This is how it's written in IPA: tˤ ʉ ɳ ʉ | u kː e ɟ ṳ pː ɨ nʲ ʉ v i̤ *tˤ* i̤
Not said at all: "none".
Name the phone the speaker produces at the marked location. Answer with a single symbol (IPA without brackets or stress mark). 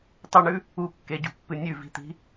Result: t̪